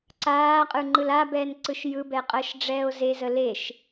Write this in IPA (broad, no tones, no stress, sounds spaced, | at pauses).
ǀ aː qʼ ɯ ŋ͡ǃ ɯ l a b ɛː n ǀ ɯ ʃ j ɯ b ɛ qʼ əː ʃ ɖ͡ʐ ɛː o̯ z e z ə l e ʃ